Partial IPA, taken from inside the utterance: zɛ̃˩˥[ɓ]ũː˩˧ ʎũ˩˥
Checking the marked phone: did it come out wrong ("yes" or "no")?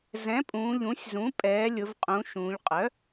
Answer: yes